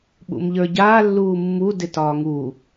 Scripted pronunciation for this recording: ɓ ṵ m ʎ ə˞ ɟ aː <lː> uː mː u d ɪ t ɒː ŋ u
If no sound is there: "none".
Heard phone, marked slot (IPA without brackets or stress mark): lː